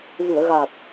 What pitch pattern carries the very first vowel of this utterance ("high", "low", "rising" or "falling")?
low